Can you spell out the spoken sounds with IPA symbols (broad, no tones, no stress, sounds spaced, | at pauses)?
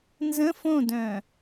n z ə̃ f õ d œ̃